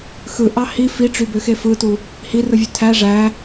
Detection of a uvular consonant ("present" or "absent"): absent